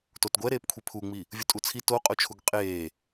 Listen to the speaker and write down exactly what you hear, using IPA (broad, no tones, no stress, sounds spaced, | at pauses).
t o t ɡʷ ɛ ɾ eː p kʷʰ i pʰ u ŋ͡m i | vʲ u tʼ u t͡sʰ i t o qʼ o t͡ʃʰ u ɡ qʼ eː